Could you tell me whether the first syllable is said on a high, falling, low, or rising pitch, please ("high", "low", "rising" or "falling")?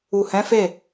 low